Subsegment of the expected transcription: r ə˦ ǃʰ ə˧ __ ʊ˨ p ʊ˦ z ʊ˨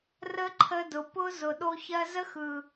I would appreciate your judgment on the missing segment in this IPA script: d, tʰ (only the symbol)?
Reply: d